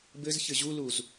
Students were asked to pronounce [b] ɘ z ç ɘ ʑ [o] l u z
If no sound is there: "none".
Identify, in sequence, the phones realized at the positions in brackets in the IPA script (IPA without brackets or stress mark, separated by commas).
b, u